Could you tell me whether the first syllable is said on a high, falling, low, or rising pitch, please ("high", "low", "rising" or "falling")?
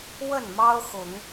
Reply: falling